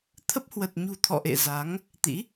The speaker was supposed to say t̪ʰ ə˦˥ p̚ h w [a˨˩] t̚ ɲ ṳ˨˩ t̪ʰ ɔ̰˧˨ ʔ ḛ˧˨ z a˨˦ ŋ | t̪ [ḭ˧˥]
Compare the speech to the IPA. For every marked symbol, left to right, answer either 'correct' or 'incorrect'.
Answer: incorrect: ə˨˩, correct

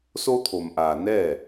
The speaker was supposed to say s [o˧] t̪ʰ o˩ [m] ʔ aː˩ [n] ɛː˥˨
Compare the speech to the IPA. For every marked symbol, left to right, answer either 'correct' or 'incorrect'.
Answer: correct, correct, correct

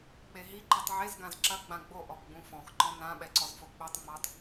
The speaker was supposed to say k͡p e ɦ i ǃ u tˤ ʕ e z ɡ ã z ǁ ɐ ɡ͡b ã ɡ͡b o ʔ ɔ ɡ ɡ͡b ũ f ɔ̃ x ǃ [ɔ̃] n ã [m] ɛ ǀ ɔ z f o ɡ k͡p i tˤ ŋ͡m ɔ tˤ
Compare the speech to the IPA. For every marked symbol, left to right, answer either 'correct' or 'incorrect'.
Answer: correct, incorrect: ɓ

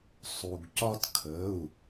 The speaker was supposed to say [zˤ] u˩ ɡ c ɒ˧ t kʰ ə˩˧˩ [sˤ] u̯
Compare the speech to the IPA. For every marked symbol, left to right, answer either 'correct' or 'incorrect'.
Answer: incorrect: sˤ, incorrect: none

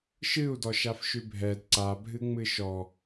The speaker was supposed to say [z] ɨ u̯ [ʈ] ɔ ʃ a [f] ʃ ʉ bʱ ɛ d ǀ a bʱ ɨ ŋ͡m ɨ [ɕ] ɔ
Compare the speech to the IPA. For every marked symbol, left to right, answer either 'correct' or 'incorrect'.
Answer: incorrect: ʃ, incorrect: d, correct, incorrect: ʃ

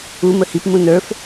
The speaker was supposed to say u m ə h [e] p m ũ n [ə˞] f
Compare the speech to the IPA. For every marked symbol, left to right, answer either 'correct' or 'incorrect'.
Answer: incorrect: i, correct

